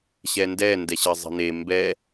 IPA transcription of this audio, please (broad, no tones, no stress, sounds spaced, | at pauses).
ɕ ɛ n d ɛ n d ɛ ɕ ɘ zˤ i̤ n e m b ɛ